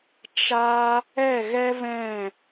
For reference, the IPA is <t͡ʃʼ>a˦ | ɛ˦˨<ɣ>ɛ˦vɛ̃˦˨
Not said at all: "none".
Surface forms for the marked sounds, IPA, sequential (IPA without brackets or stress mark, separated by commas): t͡ʃ, ɣ